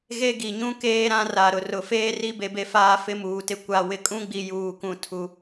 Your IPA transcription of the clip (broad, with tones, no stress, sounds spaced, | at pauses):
ɣ e˦ ɡ i˨ ɲ ũ˦ k eː˦ ɾ ã˦ r a˨ ɾ ʊ˨ r ʊ˨ f eː˦ r i˦ b e˨ b e˨ f aː˨ f ɪ˦ m uː˨ t ɪ˦ kʷ a˨ w ɪ˨ kʼ ũ˦ ɡ͡b i˨ j uː˨ k ũ˨ tʰ u˨